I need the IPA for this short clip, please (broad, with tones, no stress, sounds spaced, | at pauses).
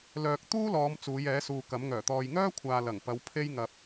l œː˨ k̚ t̪ uː˥ l ɔː˨˧ m t͡s uː˨˧ j ɛː˨˥ s uː˨ k ɐ˨˥ m ŋ œː˨˩ t̪ ɔː˧ j ŋ œː˥ kʷʰ aː˨ l ɐ˨˩ ŋ p ɐ˨˧ w pʰ e˧ j ŋ ɐ˨ p̚